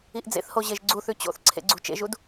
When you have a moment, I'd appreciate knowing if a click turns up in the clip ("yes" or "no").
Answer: yes